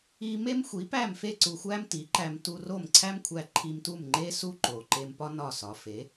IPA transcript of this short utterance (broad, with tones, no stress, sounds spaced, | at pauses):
i˧ m e˥ m xʷ i˩˥ p æ˥˩ m f e˥˩ ǀ u˧ xʷ æ˥ m t i˩˥ ǃ æ˧ m t u˧ r o˥˩ m ǀʰ æ˥ m kʷʰ æ˧ ǃʰ i˧ m t u˥˩ m ŋ͡ǃ e˥ s u˥ ǃ o˩ ǃ e˧ m p ɒ˥ n ɒ˥˩ s ɒ˩˥ f e˩˥